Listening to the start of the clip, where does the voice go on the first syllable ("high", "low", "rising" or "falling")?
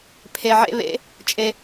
low